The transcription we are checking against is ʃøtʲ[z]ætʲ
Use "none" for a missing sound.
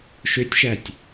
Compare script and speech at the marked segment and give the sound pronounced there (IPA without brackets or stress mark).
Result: ʃ